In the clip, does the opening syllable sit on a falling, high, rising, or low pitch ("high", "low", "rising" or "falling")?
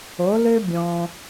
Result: rising